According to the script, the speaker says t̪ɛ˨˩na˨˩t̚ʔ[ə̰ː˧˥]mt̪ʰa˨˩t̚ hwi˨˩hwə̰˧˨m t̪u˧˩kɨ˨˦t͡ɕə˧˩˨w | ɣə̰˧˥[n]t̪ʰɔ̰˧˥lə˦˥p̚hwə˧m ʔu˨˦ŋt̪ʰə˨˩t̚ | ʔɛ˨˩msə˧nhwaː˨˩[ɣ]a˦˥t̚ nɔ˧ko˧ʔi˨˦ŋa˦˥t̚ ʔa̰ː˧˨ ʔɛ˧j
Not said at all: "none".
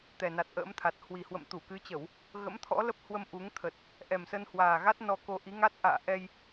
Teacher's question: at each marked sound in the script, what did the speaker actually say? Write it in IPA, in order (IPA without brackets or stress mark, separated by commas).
ə̰ː˧˥, m, ɣ